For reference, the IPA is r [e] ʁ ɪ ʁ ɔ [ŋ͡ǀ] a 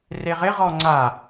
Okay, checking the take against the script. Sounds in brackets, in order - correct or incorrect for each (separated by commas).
correct, correct